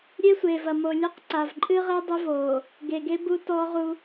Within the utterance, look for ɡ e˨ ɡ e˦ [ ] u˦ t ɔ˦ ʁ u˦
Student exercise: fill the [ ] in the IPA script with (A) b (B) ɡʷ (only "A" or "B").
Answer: A